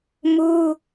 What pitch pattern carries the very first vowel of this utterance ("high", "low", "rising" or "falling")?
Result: high